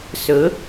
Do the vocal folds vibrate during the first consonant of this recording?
no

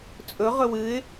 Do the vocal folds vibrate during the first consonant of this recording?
no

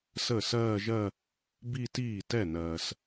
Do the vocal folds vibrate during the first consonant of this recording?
no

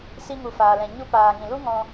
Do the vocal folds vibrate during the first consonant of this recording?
no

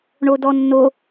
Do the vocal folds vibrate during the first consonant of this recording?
yes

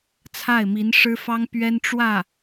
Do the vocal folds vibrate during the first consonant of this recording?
no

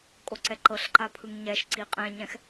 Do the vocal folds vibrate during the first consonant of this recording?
no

